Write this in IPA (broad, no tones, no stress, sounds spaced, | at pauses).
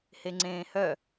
h e ŋ͡ǀ ẽː h œ